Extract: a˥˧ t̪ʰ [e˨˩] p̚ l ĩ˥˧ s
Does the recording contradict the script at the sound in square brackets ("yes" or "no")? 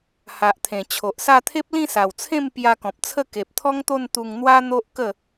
yes